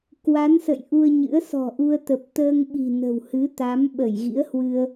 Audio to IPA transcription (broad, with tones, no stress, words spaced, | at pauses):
kwa˨˦nsə̰˧˨j ʔu˧ə̯ɲɨ̰˧˥ə̯ sɔ̤˨˩ʔu˧ə̯t̪ə˨˩p̚ t̪əː˧ŋɓi̤˨˩ nə̤˨˩whɨ˨˦t̪a˨˦m ɓə˧˩jɣḭ˧˥ə̯hwɨ˧ə̯